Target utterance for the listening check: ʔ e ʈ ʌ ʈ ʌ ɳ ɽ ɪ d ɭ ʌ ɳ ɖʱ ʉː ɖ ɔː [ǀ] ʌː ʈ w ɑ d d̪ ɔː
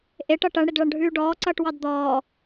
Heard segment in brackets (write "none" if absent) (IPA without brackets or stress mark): ǀ